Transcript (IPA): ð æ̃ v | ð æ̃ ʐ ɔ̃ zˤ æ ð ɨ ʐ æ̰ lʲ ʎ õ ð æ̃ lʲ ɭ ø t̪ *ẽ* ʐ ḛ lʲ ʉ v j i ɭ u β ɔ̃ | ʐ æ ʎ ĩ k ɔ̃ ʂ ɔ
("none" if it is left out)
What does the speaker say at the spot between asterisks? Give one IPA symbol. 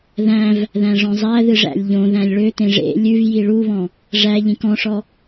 ẽ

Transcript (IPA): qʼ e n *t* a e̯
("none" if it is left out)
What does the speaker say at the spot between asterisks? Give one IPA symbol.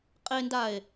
d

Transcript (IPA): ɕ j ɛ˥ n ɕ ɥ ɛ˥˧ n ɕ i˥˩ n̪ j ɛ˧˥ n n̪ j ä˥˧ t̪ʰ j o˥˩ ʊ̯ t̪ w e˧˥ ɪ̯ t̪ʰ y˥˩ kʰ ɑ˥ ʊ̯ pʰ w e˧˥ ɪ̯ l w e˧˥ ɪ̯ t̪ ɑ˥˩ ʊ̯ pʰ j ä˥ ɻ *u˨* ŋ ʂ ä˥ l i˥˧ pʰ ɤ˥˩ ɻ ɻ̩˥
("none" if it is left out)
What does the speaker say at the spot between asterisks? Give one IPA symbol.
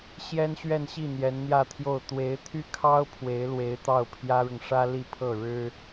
ʊ˨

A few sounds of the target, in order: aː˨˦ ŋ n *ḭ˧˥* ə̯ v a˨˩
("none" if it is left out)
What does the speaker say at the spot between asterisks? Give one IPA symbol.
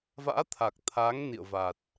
ḭ˧˨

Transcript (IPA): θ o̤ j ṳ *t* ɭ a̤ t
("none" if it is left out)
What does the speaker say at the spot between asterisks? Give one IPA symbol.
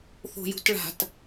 t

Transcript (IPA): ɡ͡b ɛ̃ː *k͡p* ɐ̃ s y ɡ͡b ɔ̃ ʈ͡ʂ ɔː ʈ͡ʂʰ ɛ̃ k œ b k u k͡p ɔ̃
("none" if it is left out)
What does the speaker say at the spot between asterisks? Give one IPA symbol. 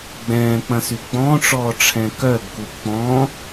k͡p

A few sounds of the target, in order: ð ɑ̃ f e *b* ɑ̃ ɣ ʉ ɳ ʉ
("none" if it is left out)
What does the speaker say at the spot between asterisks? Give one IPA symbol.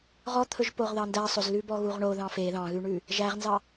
ð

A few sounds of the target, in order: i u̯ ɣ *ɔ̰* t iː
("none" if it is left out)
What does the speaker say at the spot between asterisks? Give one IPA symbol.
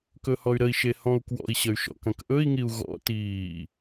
ɔ̰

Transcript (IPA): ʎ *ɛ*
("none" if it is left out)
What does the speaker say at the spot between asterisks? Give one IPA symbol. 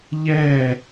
ɛ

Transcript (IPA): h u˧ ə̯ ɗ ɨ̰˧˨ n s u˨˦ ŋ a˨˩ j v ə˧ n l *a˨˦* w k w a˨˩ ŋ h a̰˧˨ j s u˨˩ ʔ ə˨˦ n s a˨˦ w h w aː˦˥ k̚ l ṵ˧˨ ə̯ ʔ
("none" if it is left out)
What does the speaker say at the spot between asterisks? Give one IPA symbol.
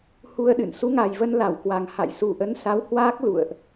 a˧˩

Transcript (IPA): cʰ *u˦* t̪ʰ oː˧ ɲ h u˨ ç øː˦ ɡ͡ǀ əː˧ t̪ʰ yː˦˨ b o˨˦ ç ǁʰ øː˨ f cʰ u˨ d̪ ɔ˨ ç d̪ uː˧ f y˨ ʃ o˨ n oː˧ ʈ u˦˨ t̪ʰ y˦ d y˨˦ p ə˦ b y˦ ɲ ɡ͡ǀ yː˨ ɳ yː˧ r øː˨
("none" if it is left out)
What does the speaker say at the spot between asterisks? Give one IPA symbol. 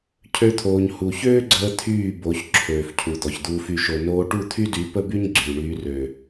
ø˦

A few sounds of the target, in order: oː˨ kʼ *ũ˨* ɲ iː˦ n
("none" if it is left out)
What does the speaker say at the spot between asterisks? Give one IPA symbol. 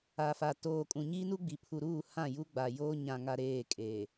ũ˨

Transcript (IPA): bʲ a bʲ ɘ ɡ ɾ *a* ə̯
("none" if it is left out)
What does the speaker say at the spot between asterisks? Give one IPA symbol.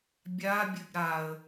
a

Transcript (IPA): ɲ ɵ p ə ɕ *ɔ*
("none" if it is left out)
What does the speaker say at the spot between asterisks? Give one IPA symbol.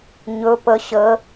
ə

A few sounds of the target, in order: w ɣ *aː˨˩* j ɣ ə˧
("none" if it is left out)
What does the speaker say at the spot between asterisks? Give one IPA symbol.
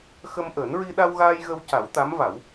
aː˧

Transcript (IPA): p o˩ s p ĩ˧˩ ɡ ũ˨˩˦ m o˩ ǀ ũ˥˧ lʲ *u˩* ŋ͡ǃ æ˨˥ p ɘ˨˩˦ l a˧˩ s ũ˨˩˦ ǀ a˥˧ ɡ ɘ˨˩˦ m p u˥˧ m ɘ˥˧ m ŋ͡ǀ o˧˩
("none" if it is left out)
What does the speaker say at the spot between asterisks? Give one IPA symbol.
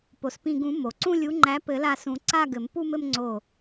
u˨˥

